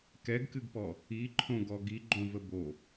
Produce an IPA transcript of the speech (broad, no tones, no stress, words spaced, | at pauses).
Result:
kɛɡkɨɡpɔ | iǃʰõɡɔ ɡiɡ͡ǃõvə bo